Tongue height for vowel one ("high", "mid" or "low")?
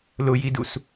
high